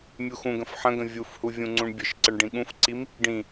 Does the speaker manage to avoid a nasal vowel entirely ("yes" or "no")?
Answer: no